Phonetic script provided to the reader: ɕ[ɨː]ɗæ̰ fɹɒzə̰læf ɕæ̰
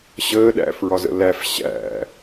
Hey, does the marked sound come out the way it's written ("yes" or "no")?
no